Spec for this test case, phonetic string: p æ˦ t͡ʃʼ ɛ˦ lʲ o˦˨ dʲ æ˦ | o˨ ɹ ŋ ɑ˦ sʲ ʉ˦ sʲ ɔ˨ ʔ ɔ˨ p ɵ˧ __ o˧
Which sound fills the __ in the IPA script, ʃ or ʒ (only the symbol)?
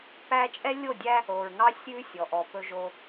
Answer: ʒ